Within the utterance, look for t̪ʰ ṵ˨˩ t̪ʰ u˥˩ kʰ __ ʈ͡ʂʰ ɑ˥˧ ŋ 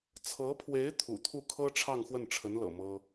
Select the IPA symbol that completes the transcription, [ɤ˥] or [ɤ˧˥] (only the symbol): ɤ˥